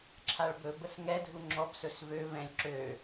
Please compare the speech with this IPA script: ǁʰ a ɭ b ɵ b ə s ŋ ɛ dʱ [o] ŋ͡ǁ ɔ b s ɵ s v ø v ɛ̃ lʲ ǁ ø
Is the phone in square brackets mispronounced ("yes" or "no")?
yes